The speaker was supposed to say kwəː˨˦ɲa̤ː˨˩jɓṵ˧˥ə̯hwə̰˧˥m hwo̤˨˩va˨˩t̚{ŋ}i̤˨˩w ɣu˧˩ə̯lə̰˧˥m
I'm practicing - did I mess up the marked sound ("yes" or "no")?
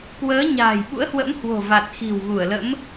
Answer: yes